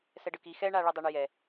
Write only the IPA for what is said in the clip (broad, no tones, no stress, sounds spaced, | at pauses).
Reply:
s ɛ ɖ ɯ k i x ɛ ɳ a ɭ ɛ dˤ ɛ ɳ ʏ j ɛ